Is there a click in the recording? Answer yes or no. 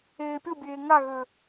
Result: no